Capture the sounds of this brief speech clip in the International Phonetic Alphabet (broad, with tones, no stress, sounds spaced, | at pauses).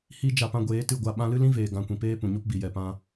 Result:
h i˦ d͡ʒ a˧ p ã˧ ɡʷ eː˨˦ t ɨ˦˨ ɡʷ a˧ ɓ ã˧ l ɨ˦ l ĩ˦ v eː˨ ɡ ã˧ kʷ ĩ˨ p eː˦ p ũ˨ ɲ o˦ p b i˨ j ɛ˨ p ã˧